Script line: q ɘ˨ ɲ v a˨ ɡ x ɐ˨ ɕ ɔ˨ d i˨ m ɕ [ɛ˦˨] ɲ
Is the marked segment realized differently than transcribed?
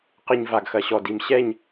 no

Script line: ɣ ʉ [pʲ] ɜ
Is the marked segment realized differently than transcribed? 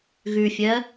yes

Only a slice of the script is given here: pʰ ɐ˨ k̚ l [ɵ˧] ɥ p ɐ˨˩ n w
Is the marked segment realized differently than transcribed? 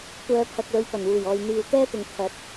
yes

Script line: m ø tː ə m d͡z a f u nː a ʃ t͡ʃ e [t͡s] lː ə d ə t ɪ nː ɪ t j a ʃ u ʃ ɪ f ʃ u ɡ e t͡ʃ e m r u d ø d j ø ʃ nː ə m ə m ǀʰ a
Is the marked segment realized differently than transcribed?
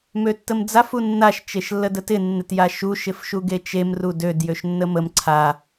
yes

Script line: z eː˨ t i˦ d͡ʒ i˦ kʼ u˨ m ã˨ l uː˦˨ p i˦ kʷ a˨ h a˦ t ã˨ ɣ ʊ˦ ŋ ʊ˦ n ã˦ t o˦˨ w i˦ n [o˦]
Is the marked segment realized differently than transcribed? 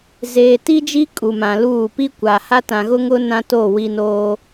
yes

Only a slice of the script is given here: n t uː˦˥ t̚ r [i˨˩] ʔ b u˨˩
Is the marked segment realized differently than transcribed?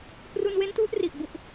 no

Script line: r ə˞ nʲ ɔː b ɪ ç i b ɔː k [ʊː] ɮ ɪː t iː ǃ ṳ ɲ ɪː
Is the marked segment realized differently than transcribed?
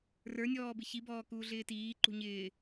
yes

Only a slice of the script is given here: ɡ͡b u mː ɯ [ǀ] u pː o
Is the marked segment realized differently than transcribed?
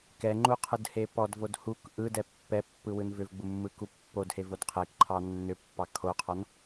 yes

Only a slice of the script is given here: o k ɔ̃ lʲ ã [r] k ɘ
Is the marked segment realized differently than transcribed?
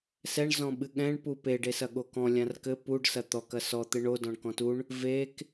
no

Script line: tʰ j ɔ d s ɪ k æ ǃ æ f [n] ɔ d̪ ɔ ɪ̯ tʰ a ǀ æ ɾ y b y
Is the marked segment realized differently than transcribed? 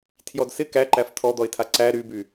yes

